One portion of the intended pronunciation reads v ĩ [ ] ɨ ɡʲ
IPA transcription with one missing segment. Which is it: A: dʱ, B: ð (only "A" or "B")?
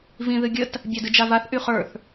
B